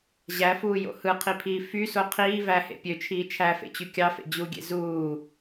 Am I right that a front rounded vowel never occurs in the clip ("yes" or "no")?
no